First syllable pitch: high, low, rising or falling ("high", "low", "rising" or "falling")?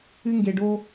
high